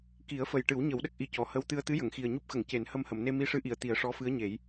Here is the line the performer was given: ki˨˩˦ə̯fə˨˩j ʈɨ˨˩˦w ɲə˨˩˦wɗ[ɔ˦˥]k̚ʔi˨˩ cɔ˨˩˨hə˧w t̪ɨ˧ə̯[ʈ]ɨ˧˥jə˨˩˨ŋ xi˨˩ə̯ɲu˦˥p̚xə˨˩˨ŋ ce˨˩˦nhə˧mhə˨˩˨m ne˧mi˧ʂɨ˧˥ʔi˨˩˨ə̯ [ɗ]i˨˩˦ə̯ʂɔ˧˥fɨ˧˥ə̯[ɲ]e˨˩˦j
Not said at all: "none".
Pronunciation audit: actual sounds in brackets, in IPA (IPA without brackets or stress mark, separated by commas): ə˦˥, t̪, t̪, ɲ